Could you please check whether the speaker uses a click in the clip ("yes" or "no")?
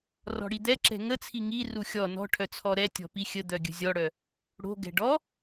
yes